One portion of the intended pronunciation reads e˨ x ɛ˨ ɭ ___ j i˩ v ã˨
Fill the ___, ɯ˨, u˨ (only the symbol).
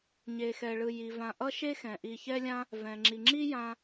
ɯ˨